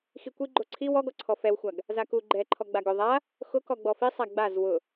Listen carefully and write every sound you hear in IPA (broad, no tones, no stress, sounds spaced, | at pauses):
x i kʷ i ɡ͡ǃ o ǀʰ i w ɔ ɡ ɔ ǀʰ ɔ f ɛ w xʷ a ɡ | z a k u ɡ͡ǃ ɛ ǃʰ ɔ ɡ͡b a ɡ ʊ ðˤ a | x ʊ k ɔ ɡ͡b ɔ f i sˤ a ɡ͡b a z w ʊ